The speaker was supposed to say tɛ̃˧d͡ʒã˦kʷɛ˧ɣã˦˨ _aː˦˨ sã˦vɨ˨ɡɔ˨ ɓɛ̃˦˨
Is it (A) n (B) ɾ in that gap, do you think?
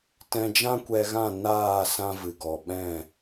A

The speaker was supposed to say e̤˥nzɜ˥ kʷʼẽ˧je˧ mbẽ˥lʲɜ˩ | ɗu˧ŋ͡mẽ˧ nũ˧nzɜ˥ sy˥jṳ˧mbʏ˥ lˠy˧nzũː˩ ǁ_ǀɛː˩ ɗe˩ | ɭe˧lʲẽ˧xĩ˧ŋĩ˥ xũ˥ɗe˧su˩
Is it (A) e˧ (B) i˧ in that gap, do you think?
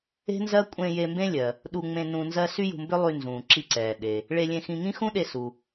B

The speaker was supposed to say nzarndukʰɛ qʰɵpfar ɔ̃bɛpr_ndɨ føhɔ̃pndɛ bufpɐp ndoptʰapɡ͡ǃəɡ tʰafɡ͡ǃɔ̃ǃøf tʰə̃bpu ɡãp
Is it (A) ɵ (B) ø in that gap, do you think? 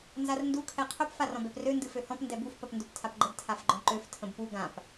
B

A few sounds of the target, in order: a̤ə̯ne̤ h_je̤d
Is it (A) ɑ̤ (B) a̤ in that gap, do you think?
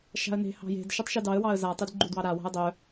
A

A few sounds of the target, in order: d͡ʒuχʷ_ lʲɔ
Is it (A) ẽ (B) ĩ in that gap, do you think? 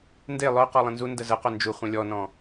A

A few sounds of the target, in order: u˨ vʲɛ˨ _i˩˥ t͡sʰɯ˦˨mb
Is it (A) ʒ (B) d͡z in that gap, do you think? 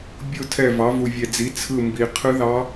B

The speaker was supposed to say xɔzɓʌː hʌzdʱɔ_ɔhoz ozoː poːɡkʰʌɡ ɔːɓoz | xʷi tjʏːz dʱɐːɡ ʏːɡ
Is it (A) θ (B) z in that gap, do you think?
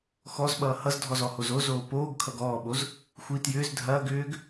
B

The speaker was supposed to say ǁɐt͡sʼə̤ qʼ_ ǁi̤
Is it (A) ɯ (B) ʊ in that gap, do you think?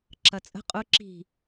B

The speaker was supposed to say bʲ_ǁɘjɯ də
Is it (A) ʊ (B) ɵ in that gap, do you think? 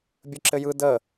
B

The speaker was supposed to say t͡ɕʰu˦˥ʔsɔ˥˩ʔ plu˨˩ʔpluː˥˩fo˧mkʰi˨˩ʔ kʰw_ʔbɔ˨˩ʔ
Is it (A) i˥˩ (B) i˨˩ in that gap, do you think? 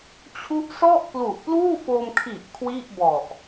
A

